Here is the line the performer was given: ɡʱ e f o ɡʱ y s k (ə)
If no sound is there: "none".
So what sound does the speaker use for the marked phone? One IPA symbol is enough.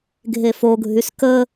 ə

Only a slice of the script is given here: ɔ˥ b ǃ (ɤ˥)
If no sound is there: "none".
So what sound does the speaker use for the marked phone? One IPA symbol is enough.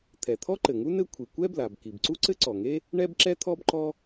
ɔ˥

